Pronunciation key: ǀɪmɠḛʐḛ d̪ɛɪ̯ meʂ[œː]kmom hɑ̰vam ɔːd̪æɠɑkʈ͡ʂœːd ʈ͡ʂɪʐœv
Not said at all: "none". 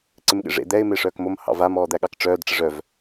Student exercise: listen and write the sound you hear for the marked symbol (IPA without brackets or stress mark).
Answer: œː